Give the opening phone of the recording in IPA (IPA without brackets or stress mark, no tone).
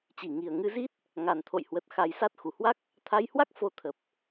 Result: t͡ɕ